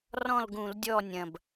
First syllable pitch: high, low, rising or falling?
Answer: falling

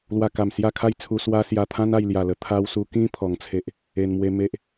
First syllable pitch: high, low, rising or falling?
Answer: low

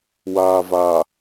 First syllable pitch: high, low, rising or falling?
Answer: low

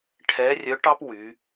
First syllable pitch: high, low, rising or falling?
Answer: rising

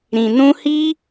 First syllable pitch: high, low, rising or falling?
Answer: low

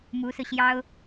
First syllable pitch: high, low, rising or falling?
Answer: rising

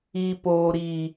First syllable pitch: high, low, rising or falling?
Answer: low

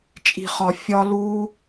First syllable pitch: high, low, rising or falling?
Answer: low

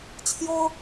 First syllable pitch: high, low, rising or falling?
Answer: high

